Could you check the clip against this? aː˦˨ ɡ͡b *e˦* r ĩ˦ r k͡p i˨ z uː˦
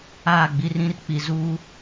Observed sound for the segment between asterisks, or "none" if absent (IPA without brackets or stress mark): i˦